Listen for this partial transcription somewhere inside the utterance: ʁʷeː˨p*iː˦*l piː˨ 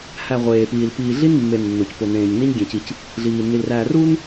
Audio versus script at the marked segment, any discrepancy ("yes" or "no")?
yes